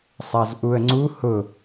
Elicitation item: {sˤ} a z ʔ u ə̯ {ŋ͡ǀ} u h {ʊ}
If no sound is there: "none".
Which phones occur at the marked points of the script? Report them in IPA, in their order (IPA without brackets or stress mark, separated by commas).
sˤ, ŋ͡ǀ, ʊ